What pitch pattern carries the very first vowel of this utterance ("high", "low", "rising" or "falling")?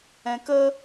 low